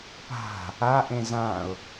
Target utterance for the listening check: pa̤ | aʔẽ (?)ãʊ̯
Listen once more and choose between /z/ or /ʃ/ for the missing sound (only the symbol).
z